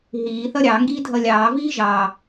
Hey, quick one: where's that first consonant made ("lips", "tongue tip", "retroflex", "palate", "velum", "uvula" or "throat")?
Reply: throat